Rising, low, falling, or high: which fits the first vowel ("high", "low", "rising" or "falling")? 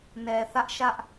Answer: low